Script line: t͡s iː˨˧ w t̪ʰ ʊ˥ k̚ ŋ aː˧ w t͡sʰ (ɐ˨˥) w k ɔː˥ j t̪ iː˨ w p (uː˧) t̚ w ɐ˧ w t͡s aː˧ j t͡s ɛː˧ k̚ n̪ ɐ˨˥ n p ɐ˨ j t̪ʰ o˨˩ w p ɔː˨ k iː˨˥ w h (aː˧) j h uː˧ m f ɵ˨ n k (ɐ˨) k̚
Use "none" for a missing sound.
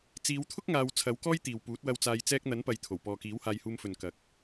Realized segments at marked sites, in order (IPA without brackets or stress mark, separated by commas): ɐ˨˥, uː˨˥, aː˧, ɐ˨